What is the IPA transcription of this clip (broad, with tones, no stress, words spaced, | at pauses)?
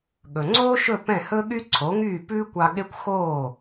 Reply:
ɠɵ˩ŋ͡ǀoː˥ʃɵ˥˩ pɛ̃˥˩hɵ˥ɠy˥ ǀʰo˩˥ŋyː˥˩pʉː˥kʷɑ˧ ɠe˥kʷ xoː˥˩